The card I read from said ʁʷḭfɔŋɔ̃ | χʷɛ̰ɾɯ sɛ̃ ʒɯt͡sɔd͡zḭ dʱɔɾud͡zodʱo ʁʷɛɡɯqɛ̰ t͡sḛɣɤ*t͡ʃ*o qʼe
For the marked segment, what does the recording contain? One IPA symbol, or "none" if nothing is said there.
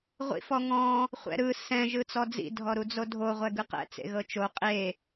t͡ʃ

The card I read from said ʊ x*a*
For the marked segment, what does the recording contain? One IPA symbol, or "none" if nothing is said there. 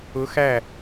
æ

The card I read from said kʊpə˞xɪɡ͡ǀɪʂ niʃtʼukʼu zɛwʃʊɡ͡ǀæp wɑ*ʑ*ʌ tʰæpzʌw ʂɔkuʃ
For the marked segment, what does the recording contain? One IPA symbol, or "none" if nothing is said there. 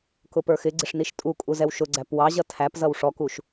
ʑ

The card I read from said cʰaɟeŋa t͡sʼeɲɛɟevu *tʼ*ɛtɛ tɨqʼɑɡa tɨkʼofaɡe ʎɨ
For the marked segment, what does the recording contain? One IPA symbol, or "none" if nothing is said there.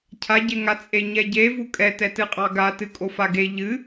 kʼ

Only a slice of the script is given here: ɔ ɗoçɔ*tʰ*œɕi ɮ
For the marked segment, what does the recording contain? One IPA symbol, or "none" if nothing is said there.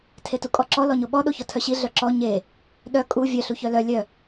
tʰ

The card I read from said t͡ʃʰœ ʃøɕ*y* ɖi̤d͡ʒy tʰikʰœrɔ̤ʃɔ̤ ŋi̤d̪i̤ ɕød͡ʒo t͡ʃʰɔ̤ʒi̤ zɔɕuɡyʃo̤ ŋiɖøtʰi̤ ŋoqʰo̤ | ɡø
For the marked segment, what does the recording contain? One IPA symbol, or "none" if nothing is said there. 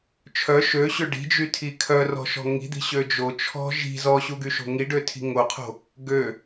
ø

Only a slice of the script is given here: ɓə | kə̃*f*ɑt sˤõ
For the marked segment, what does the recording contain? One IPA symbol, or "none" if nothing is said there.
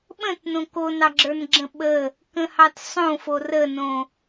h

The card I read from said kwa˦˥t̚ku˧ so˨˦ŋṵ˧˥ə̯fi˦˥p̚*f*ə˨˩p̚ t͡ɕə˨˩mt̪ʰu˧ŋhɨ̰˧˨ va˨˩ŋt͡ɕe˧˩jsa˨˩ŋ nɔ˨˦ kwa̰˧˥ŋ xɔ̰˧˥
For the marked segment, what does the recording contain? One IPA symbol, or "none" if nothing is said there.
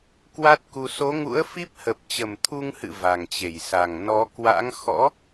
h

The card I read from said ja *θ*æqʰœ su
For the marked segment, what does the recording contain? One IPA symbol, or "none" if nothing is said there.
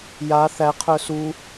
θ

